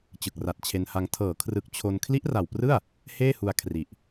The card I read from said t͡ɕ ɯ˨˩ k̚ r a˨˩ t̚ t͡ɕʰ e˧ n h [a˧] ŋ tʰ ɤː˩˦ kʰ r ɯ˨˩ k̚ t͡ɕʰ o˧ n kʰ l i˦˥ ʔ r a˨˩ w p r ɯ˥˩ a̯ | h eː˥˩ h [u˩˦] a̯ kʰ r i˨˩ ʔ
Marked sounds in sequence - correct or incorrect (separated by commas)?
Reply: correct, incorrect